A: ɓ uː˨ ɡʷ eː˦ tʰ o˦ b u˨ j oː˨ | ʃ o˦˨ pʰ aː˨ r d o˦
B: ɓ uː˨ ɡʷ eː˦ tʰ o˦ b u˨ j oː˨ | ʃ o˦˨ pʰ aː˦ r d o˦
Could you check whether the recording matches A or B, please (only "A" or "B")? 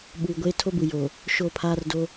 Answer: B